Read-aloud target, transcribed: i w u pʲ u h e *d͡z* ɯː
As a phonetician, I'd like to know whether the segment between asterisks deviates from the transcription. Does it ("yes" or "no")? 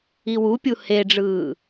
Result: yes